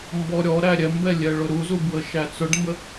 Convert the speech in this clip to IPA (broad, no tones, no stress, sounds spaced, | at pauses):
m b ɔ ɾʲ ɔ ɾ æ ɾʲ ɛ m b ɛ lʲ ɛ ɭ ʊ ɾ u z u b w ə ʃ æ t͡s ʊ ɖ m b ə